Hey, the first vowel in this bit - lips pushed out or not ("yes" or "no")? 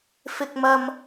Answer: no